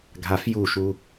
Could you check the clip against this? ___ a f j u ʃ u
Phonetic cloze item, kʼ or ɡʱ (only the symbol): ɡʱ